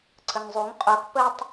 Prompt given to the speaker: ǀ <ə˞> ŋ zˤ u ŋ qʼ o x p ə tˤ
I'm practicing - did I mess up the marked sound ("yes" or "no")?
yes